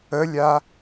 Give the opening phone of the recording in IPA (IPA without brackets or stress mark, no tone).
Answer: ə